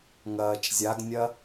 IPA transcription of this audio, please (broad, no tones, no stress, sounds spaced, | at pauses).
ŋ ɐː t͡ʃ zʲ a ɡ nʲ ɐ